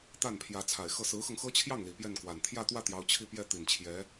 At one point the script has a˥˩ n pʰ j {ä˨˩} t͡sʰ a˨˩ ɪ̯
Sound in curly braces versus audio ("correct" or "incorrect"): incorrect